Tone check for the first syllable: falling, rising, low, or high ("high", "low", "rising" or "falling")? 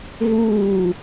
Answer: falling